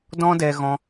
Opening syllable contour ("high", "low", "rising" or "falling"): high